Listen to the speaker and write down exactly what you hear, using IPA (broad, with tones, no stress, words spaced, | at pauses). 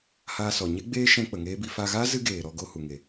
haː˧sɔ˨ ɲe˦ɡ͡beː˦ ʃɛ̃˧k͡pə˨ ŋeː˦bi˧ fa˧ɣaː˦ zɨ˦ɡeː˨ɾɔ˧ɡo˧ hu˨ŋe˨